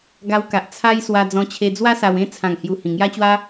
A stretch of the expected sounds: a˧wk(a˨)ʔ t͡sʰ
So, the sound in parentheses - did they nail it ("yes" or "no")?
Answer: yes